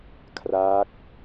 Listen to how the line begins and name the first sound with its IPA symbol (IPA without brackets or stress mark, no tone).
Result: kʰ